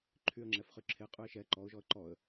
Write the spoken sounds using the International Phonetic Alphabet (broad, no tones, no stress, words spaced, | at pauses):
ǃʰyə̯ŋ͡ǁɛfχy ǁʰeqʼʉɪ̯ ʃɛ ǃɔʊ̯ʒɔə̯ ǃɔə̯